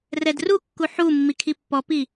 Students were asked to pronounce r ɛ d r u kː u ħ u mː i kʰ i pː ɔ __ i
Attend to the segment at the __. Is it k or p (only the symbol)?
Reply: p